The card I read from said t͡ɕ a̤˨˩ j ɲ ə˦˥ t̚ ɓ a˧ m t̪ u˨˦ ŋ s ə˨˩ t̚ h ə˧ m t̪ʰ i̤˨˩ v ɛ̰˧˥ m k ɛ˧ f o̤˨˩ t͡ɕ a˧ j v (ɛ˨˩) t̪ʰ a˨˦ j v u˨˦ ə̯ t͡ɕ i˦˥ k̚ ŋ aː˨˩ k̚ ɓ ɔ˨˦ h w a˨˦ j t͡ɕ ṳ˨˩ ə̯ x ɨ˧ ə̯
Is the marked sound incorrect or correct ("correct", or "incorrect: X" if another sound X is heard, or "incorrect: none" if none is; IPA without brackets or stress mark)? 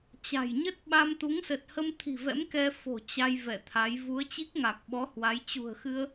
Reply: incorrect: ɛ˧˩